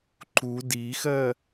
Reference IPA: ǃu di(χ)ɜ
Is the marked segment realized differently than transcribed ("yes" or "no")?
yes